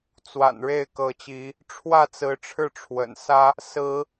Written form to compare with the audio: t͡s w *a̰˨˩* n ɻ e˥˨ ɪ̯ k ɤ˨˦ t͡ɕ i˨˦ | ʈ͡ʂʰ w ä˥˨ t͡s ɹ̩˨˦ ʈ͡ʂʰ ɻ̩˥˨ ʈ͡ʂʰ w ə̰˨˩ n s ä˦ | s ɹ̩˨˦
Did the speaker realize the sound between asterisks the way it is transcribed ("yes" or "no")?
yes